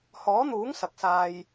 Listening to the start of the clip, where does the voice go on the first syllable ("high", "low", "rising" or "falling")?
rising